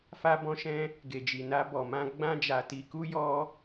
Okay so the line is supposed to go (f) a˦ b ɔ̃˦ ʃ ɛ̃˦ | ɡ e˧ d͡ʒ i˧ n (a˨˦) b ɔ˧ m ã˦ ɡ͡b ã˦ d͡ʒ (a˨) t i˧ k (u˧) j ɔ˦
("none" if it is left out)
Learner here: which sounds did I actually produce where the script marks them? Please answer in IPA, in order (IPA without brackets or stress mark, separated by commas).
f, a˦, a˧, u˦